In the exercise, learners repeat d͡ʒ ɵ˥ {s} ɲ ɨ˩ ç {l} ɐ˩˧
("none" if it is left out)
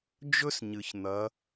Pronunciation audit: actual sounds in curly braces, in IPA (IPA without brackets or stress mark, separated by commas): s, n̪